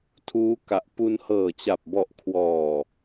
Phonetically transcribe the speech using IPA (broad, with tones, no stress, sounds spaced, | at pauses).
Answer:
tʰ uː˦˥ k a˨˩ ʔ p u˧ n h ɤː˨˩ t͡ɕ a˨˩ p̚ b ɔ˨˩ ʔ kʰ w ɔː˨˩